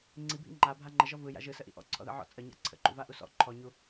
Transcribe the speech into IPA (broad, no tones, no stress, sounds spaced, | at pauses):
ŋ͡ǀ i bʱ ḭ ŋ͡ǃ a bʱ a ŋ͡ǃ ə ʒ ɔ v ɯ j a̰ ʒ ɯ s ə ʔ ḭ ʔ ɔ̰ ǀʰ ɔ̰ ð ə̰ ʕ ɔ̰ t͡sʼ ə ɲ a̰ ǀʰ ə̰ ǃ ṵ v a ʔ u s ɔ̰ ǃʰ ɔ ɲ u